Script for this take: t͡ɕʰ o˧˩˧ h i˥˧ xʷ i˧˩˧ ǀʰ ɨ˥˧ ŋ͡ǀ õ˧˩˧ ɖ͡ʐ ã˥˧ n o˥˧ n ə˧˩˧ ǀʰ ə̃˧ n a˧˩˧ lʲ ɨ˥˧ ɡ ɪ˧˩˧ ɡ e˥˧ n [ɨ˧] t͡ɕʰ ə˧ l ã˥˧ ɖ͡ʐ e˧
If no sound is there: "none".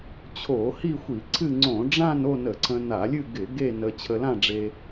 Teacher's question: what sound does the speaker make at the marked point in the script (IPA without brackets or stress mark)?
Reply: ə˧